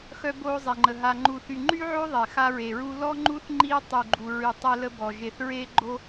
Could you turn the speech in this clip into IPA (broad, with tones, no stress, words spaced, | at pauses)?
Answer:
xœ˥boː˥zˤe˧ŋ͡ǃə˧ ɦa˧ŋ͡ǃu˧θy˧ ŋ͡ǃy˥ʕo˥ ðˤɛ˧xa˥ɹe˧ɹu˥ lɔ˥ŋ͡ǃu˥θ ŋ͡ǃiː˥ tˤy˧ɡ͡ǃu˧ɹy˧ tˤɛ˥lə˥bɔ˧ ʒe˧θɹeː˥ɡ͡ǃo˥